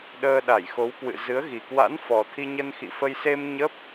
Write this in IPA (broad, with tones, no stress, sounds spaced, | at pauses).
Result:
ɗ əː˧ ɗ a˧˩ j x o˨˦ w k w ɨ̰˧˨ z ɨ˨˦ ə̯ ɣ i˨˩ k w a̰˧˥ n f ɔ˨˩ t̪ʰ i˧ ɲ ə˧ n x ḭ˧˨ f ə˧ j s e˧ m ɲ ə˦˥ p̚